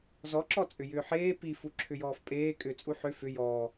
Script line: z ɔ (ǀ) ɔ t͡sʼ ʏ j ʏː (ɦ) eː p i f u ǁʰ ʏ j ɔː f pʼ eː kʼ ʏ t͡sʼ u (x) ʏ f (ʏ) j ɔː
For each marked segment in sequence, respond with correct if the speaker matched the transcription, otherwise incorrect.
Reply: incorrect, incorrect, incorrect, correct

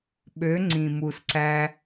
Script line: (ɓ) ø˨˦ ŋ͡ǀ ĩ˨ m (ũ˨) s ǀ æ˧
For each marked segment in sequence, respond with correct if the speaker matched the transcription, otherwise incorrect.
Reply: correct, incorrect

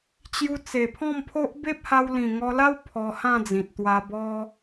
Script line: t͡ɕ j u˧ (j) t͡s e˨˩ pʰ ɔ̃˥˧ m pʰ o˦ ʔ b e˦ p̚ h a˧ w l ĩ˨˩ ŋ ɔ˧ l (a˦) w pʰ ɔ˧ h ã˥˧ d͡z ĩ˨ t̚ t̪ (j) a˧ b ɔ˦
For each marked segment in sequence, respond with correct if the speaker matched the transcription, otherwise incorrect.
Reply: incorrect, correct, incorrect

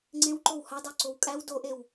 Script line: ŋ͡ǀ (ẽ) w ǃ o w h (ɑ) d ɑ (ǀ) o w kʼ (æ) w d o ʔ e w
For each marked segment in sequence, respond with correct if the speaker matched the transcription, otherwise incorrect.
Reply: correct, correct, correct, correct

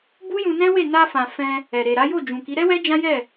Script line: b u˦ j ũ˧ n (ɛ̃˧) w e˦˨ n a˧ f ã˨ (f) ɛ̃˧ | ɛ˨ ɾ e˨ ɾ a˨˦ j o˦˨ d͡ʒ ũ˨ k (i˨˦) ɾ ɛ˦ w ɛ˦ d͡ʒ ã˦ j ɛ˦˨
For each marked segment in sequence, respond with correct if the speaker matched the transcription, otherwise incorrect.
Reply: incorrect, correct, correct

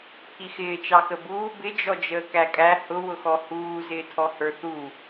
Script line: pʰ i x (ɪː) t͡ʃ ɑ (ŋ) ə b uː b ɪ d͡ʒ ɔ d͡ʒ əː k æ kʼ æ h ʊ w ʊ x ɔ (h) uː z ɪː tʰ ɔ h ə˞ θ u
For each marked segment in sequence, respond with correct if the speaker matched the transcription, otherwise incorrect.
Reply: correct, incorrect, correct

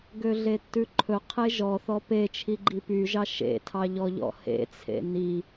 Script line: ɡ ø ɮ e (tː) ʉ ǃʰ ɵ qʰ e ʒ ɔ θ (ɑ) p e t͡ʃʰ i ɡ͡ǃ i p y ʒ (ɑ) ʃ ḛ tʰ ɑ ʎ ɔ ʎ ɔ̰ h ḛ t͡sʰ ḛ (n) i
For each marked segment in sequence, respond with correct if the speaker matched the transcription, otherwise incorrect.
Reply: correct, incorrect, correct, correct

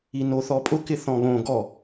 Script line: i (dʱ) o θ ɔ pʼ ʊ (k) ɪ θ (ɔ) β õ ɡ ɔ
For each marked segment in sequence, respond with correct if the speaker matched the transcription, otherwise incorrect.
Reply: incorrect, correct, incorrect

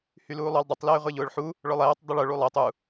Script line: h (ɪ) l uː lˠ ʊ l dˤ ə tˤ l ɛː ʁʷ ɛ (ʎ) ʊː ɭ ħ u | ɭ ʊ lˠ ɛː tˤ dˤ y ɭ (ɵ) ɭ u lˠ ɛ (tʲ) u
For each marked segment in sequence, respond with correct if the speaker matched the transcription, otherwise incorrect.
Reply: incorrect, correct, incorrect, incorrect

